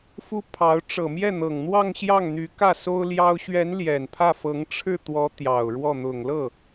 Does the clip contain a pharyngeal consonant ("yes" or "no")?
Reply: no